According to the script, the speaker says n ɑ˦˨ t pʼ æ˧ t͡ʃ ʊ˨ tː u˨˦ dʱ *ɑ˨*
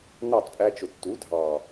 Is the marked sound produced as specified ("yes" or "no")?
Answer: yes